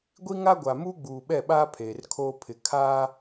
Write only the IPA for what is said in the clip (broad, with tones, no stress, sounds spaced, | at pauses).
ɡʷ i˦ ŋ a˦ ɡʷ a˨ m uː˦ ɡ͡b uː˨ ɓ ɛ˦˨ ɓ aː˦ pʰ eː˨ r kʰ oː˦ pʰ ɪ˨ kʰ aː˦